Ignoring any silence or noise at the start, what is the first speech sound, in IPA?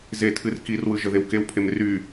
z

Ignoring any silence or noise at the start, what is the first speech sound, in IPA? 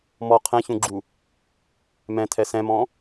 m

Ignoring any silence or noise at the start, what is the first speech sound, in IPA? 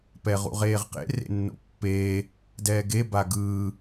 p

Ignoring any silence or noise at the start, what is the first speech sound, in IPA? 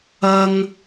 ɐ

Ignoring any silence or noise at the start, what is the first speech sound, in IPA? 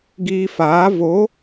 ɡ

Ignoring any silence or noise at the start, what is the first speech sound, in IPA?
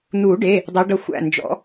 n̪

